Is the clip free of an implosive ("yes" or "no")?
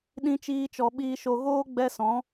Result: no